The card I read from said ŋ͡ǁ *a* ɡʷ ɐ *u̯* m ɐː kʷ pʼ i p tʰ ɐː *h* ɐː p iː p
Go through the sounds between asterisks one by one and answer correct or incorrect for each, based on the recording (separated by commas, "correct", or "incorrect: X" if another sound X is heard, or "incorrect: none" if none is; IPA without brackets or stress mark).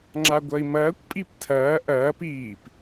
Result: correct, incorrect: i̯, incorrect: ʔ